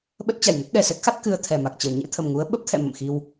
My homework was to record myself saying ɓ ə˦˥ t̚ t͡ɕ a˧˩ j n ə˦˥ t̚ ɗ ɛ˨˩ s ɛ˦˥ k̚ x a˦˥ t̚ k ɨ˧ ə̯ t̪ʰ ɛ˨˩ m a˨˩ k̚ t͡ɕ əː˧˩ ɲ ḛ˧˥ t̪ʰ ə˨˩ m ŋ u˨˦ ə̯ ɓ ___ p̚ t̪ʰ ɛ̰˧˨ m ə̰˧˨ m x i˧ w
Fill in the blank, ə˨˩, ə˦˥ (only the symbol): ə˦˥